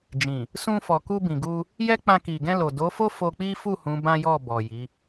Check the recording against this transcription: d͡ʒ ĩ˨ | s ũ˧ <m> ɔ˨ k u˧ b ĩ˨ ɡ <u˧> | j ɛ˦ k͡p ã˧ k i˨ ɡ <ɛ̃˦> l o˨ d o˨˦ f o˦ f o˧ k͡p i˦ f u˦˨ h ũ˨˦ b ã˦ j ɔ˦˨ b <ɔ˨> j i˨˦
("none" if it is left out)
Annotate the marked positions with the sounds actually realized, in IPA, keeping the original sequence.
f, u˧, ɛ̃˧, ɔ˨

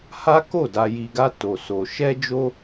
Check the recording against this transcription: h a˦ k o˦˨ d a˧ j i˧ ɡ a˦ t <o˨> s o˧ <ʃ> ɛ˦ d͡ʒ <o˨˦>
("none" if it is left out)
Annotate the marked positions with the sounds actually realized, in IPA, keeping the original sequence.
o˧, ʃ, o˦

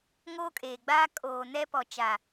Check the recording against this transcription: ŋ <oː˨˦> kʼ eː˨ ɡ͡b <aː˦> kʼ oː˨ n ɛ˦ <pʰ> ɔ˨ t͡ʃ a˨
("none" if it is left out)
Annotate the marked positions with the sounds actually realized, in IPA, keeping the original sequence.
oː˦, aː˦, p

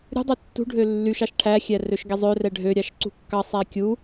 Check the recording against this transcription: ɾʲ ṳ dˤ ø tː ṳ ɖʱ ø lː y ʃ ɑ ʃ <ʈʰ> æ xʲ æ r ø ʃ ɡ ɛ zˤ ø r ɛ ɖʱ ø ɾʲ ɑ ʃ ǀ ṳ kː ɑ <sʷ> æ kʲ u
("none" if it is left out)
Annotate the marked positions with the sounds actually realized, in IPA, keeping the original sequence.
ʈʰ, sˤ

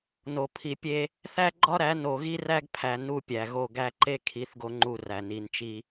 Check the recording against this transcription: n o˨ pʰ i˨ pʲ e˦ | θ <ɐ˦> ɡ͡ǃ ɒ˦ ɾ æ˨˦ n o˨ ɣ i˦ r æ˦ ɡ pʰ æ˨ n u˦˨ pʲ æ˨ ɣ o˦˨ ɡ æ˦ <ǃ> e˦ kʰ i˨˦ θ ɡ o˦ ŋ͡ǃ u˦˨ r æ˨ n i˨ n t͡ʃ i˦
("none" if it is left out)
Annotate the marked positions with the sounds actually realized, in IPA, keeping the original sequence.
æ˦, ǃ

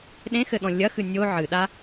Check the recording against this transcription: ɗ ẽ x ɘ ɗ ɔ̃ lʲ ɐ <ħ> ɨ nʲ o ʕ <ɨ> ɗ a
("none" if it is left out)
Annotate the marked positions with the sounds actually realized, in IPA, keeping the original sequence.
x, ɨ

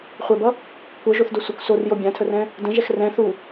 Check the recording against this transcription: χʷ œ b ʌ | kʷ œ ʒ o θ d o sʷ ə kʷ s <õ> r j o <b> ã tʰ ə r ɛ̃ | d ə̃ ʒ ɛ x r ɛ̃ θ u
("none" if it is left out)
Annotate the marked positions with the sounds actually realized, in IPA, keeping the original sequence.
o, bʲ

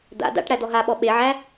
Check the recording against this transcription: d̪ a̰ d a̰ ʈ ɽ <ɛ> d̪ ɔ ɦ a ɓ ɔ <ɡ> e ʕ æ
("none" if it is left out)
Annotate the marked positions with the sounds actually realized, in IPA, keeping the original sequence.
æ, ɓ

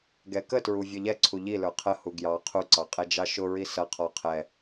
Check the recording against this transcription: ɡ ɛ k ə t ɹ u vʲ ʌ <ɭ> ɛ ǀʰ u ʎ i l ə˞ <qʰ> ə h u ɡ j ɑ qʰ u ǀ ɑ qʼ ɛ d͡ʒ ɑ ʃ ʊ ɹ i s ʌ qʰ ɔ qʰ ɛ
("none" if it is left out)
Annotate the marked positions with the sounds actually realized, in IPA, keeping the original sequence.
ʎ, qʰ

